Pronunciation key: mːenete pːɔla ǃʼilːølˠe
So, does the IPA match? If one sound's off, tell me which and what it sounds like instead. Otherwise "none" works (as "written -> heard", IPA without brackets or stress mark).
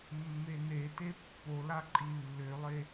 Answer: ɔ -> o